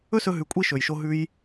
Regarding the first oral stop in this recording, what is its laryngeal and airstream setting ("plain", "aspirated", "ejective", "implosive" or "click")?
ejective